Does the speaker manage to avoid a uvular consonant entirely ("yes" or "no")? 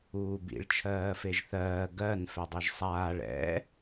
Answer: yes